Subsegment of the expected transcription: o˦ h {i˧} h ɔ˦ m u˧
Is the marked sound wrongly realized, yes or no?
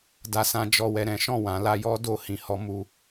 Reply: yes